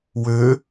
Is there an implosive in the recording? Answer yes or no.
no